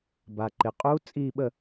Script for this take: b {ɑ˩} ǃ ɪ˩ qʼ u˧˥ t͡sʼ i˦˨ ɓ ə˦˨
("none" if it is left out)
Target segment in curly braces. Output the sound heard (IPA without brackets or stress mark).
a˩